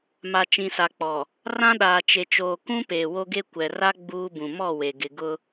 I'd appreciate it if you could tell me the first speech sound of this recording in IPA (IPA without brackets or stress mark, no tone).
m